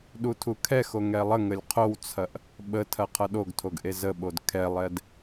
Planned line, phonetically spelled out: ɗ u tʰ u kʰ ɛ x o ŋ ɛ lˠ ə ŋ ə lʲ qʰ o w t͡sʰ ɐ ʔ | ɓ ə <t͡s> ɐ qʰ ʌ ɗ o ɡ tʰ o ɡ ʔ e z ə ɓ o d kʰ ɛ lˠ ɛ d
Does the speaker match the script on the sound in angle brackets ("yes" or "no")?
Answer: no